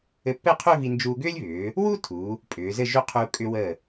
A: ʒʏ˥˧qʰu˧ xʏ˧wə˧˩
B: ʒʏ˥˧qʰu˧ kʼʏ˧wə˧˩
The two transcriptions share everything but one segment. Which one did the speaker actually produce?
B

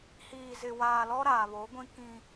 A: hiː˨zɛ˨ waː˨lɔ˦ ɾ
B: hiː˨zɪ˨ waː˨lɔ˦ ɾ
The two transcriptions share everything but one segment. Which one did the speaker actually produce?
B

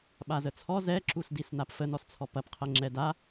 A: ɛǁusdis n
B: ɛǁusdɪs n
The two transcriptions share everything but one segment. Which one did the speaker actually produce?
A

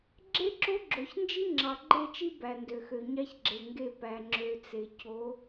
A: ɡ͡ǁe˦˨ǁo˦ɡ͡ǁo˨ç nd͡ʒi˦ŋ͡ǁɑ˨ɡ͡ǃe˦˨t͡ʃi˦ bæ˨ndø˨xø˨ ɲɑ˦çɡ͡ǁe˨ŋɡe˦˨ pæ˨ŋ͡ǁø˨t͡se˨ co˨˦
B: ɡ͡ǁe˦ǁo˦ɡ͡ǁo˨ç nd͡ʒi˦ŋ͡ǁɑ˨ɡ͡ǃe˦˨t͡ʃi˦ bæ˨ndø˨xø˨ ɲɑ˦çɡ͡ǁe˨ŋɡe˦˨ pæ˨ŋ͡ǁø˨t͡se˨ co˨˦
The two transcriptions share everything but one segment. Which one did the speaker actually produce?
B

